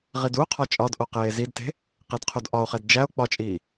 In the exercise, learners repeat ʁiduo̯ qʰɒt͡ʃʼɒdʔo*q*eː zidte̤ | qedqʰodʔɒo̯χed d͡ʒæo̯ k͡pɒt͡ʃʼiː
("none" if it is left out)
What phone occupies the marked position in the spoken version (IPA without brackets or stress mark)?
q